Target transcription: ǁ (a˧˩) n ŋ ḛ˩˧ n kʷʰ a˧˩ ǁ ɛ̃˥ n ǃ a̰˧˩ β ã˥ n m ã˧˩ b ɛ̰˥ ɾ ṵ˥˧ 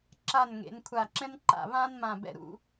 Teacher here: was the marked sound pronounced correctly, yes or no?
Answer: yes